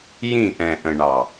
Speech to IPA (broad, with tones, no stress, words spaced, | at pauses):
jĩ˦˨ʔɛ̃˨ʔə̃˨ɳɑ˨